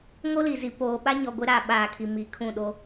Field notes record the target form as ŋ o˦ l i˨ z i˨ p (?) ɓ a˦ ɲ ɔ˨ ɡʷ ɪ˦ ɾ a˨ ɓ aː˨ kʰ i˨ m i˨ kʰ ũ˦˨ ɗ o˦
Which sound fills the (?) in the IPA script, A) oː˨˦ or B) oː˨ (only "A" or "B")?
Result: B